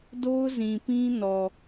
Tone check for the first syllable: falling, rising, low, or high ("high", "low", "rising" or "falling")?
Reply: high